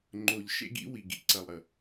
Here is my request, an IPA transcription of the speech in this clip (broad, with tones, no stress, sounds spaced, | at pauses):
ŋ͡ǃ o˨ ʎ ʃ ḛ˦ ɡ ḭ˦ w i˨ ɡ ḭ˨ ǀ ɐ˨ lˠ ɾ ə˨